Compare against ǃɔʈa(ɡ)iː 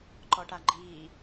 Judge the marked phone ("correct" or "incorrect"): incorrect